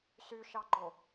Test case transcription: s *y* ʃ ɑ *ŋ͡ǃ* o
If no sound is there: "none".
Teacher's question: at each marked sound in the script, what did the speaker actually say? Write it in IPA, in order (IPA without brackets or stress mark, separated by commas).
y, ɡ͡ǃ